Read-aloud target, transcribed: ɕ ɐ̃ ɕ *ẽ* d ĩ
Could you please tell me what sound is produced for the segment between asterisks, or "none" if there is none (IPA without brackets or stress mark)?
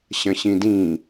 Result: ĩ